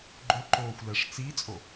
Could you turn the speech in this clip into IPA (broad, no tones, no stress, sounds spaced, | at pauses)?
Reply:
ɡ͡ǃ o ǃ oː xʷ l ɛ ʂ t͡s i t͡sʼ o